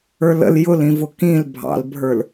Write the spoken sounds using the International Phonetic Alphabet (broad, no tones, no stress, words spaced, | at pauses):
ə˞lə̰l jʊlĩvʊ kĩl bʱɑ̰lbʱə˞l